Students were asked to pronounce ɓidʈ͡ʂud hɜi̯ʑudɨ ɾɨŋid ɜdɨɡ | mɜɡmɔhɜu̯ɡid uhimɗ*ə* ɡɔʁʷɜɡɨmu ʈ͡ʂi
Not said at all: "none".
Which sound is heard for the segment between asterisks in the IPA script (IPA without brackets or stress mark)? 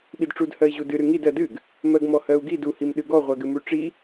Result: ɨ